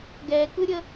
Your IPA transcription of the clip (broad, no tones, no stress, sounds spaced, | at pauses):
ɡ ɛ k ɯ ɾʲ ə